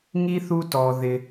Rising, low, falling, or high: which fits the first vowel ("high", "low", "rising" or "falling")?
high